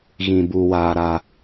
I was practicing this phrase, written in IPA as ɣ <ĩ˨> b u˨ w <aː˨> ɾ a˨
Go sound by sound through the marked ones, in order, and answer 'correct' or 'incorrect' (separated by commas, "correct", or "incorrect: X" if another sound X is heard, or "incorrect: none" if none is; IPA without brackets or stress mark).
correct, correct